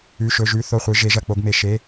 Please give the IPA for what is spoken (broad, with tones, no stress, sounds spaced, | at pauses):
ʉ˧˥˧ ʃ ɵ˧˥˧ ʒ ʉ˧˥˧ θ o˥˨ χʷ ɨ˧˥ ʒ e˧˥ ʒ ɐ˧˥˧ k͡p o˧˥ ɡ m e˧˥ ʃ e˧˥˧